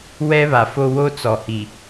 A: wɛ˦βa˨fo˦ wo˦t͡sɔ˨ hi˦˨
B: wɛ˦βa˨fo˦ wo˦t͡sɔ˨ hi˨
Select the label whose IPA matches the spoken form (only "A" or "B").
B